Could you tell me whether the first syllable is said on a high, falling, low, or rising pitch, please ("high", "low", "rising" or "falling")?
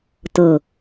low